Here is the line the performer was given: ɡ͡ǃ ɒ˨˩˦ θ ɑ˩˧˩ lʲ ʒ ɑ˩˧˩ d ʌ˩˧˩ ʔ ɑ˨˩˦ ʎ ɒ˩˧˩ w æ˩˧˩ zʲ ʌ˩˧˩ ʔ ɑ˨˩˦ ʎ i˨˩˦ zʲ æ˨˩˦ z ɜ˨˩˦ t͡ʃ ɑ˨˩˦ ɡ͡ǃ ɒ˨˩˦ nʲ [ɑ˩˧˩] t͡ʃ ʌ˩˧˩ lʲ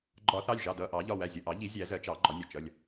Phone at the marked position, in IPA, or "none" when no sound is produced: ɒ˩˧˩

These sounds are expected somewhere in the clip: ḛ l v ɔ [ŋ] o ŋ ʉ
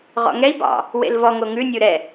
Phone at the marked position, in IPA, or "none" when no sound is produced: ŋ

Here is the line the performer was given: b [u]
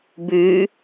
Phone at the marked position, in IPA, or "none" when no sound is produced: ʉ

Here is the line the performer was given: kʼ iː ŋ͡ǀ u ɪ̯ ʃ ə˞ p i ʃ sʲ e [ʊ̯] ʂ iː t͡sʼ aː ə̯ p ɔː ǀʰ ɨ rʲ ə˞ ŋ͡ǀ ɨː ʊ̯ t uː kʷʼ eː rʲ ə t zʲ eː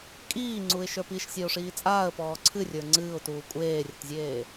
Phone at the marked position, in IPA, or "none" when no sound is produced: ʊ̯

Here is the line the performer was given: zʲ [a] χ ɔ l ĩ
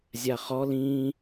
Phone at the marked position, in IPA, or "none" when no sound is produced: a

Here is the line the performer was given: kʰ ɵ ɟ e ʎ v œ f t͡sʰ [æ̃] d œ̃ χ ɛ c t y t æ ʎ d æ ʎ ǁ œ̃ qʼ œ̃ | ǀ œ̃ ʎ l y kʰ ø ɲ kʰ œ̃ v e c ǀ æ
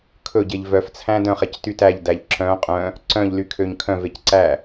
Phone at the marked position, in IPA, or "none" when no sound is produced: æ̃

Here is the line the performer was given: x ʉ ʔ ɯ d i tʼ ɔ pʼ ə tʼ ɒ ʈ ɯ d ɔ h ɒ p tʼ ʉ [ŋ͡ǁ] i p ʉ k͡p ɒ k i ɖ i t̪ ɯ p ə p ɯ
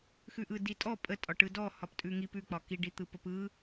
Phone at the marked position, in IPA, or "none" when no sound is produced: ŋ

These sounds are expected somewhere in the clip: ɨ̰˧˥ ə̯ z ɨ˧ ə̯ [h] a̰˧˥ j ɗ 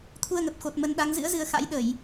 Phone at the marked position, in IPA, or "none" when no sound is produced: x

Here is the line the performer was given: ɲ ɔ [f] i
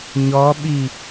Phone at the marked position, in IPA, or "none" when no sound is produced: ɓ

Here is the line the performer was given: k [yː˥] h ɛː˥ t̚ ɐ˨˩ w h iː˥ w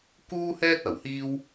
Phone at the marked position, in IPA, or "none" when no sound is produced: uː˥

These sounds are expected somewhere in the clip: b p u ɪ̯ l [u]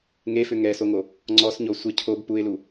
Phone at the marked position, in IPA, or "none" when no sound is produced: u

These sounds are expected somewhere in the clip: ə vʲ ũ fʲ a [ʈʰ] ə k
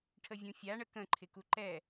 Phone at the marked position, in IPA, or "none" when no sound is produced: ɳ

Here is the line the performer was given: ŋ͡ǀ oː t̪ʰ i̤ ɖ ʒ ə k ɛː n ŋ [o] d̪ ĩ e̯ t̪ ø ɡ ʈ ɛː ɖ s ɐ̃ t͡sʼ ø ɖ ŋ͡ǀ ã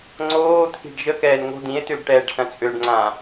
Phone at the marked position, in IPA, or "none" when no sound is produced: o̤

